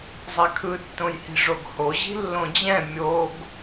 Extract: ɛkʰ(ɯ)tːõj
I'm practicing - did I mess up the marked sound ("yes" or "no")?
no